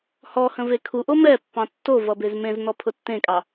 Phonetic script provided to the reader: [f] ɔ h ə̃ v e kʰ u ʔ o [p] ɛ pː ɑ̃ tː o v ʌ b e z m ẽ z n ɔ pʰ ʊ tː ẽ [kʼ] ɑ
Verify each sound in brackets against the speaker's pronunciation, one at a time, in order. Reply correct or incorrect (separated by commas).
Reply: incorrect, incorrect, correct